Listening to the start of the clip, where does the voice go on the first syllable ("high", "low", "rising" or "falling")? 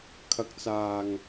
low